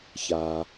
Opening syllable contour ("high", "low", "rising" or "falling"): high